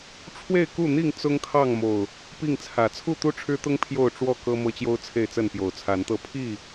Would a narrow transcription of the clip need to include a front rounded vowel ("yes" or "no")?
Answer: no